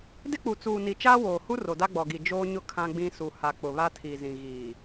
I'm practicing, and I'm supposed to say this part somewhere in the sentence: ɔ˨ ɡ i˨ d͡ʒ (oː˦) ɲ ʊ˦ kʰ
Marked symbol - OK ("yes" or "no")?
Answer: yes